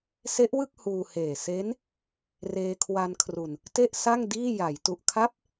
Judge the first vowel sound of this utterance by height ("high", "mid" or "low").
mid